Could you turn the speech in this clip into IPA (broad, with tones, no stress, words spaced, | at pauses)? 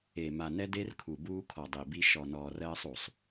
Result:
e˨ ma˨nɛ˦de˦r kʰu˨buː˦kʰɔ˨ dˤi˨bi˦ ʃɔ˨nɔː˨r ɜː˦sˤu˨sˤ